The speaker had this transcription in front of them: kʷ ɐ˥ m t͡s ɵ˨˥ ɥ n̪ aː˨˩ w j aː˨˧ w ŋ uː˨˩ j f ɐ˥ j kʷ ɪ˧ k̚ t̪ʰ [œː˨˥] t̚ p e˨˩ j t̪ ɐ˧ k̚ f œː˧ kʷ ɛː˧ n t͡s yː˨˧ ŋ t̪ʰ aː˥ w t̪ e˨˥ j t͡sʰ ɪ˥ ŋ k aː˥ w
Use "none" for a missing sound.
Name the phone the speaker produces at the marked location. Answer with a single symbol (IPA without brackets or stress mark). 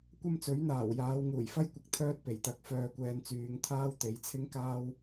œː˥